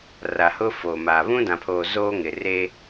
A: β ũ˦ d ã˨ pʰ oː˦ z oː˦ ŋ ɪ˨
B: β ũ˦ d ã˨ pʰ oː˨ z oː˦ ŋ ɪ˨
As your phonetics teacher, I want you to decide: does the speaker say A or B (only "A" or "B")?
B